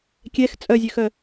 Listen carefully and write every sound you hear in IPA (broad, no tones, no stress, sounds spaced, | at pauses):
kʲ ɛ x t͡sʼ œ zʲ ø x œ